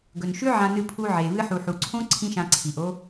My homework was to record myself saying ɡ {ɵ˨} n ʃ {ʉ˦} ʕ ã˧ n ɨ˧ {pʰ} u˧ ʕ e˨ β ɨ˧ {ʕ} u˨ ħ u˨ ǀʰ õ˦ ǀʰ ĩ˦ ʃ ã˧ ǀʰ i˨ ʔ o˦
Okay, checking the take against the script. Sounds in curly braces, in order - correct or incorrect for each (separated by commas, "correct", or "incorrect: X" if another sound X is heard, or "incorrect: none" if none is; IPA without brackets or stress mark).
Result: correct, correct, correct, incorrect: ħ